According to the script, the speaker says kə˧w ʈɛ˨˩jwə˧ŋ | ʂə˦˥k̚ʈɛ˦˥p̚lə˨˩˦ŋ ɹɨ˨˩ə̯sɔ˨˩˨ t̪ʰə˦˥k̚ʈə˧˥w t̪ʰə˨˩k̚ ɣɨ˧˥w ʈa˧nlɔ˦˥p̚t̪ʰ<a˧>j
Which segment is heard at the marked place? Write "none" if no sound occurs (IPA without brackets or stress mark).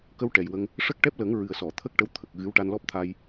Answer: a˧